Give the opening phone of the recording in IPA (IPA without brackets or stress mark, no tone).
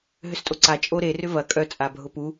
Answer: ɦ